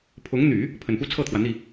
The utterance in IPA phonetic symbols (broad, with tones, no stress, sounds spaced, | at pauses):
pʰ ʊ˧˥ ŋ n̪ y˨˩˦ | pʰ ə˨˩ n p u˥ t͡sʰ ɤ˥˩ t̪ʰ w ä˩ n̪ i˥˩